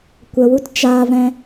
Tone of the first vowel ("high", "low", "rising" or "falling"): low